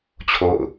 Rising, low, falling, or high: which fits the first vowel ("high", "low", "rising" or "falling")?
falling